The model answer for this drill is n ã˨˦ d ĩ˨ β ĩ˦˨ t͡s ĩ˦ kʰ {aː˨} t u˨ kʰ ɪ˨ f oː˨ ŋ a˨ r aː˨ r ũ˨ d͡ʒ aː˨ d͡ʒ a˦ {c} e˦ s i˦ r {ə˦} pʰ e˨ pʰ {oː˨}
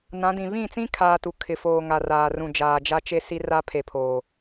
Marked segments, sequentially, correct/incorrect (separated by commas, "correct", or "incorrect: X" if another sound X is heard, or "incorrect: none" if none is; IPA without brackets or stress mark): incorrect: aː˦, incorrect: t͡ʃ, incorrect: a˦, correct